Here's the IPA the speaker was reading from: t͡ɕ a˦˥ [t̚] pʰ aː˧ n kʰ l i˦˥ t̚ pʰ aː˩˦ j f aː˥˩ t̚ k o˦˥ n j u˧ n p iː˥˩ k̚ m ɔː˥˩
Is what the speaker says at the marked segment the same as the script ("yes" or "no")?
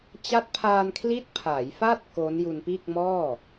yes